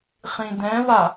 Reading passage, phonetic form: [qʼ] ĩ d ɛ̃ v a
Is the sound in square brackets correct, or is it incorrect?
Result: incorrect